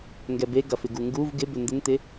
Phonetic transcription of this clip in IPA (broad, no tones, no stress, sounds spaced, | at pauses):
ŋ ɡ ɛ b e ɡ ɐ f ɪ ɡ u ŋ ɡ u v ɡ ɪ b ʏ n d ɪ n t ɪ